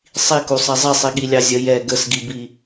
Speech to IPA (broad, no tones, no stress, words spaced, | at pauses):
sˤikusˤi zˤisˤiɠilʲɑ zʲə jɛ ɡəsɡibi